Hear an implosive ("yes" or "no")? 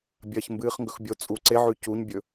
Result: no